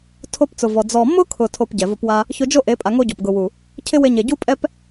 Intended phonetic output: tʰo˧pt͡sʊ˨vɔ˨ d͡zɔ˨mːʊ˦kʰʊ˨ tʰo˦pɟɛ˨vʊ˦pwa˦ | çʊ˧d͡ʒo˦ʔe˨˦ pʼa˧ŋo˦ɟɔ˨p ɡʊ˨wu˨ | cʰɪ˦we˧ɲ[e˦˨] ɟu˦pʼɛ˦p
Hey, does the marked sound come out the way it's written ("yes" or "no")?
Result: no